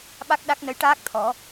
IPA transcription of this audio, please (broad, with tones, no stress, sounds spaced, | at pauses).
ɓ a˦˥ k̚ ɗ a˦˥ k̚ n ə˧˥ j ʈ aː˦˥ k̚ t̪ʰ ɔ˨˩˦